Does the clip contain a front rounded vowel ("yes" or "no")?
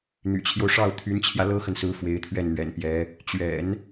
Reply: yes